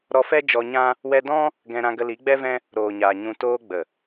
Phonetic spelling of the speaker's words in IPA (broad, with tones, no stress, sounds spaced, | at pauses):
ɾ ɔ˧ f ɛ˦ d͡ʒ ɔ˧ ɲ ã˦ | w ɛ˧ d ɔ̃˦ | ɡ ɛ̃˧ ɾ ã˧ ɡ ə˧ l i˨˦ ɡ͡b ɛ˦ v ɛ̃˦ | ɾ oː˨ ɲ aː˨ ɲ ũ˧ t oː˧ ɡ͡b ə˨